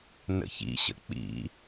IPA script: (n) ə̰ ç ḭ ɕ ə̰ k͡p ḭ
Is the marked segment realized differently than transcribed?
no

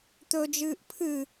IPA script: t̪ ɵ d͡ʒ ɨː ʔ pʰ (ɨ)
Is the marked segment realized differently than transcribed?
no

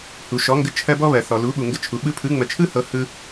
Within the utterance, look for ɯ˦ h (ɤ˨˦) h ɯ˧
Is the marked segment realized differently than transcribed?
no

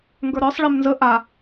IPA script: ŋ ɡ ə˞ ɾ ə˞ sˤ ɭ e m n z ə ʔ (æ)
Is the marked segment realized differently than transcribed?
yes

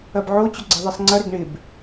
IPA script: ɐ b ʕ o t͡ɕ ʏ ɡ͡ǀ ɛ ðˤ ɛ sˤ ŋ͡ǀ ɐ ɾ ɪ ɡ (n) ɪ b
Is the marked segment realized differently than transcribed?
yes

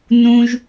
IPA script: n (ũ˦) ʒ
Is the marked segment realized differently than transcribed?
no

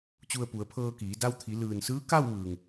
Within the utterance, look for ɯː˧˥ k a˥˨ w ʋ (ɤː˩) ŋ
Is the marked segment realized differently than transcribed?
yes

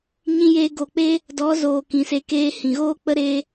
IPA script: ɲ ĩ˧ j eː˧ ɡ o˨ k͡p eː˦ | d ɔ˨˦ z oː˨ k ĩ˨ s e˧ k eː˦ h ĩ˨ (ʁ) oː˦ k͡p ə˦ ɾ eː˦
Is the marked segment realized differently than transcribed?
yes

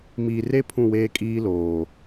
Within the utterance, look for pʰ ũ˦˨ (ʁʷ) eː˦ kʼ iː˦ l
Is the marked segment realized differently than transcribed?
yes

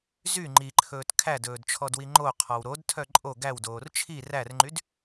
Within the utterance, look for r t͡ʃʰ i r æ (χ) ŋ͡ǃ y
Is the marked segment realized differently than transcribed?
yes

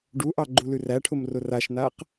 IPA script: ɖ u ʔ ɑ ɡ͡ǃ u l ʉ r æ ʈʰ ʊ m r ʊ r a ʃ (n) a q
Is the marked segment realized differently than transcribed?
no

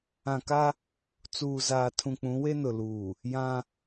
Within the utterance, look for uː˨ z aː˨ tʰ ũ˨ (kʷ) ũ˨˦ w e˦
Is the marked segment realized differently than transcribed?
yes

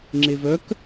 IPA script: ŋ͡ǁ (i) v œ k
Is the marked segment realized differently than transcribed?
yes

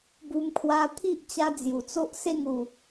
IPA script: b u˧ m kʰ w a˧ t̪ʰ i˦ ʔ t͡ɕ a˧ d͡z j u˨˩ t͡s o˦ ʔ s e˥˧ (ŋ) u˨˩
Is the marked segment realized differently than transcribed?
no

